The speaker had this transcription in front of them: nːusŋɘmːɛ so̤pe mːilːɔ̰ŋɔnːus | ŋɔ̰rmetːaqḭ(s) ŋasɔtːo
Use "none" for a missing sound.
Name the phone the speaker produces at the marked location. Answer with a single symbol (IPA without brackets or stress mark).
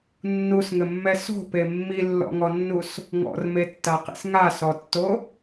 s